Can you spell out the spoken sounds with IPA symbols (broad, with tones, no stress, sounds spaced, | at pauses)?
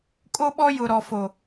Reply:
kʼ o˦ ɓ ɔ˦ j ʊ˨ ɾ ɔ˨ f o˨